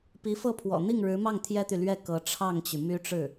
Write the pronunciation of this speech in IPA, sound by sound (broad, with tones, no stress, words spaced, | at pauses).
pi˧˥fɤ˥˩pʰwɔ̰˨˩ n̪i˥˩ŋɻɻ̩˧˥mɑ˥˩ŋ t̪ʰjɛ˥t̪y˨lɥɛ˥˩ kɤ˧˥ ʈ͡ʂʰɑ˥˩ŋt͡ɕy˩ my˥ʈ͡ʂɻ̩˥˩